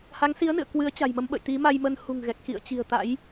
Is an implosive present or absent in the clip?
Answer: present